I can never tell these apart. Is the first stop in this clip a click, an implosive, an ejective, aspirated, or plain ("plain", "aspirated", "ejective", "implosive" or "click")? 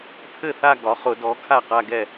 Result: aspirated